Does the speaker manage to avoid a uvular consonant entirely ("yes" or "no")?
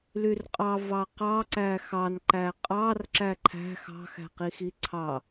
no